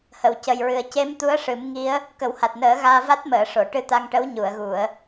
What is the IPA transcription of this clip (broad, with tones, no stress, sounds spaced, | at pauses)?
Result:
h ə˨˩˨ w c ə˨˩ j ɹ ɨ˨˩ ə̯ c e˧˥ m t̪ u˧˥ ə̯ ʂ ɨ˨˩˦ m ŋ i˧˥ ə̯ | k ə˨˩˦ w h a˨˩ t̚ n əː˨˩˦ ɣ aː˧ v a˦˥ t̚ m əː˨˩˨ ʂ o˨˩˨ ʈ ɨ˧ t̪ a˧ ŋ ʈ ə˧˥ w ɲ u˨˩˨ ə̯ ɣ u˨˩˨ ə̯